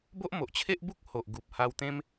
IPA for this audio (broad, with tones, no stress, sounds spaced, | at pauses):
b o˦ ʔ m o˨ ʔ t͡ɕʰ e˦ ʔ b u˦ k̚ h o˨ ʔ ɡ u˨ p̚ h a˧ w t̪ ẽ˦ m